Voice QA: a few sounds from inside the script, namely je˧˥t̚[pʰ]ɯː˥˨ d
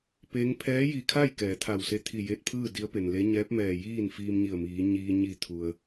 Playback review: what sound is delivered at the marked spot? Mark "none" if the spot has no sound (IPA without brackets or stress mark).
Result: pʰ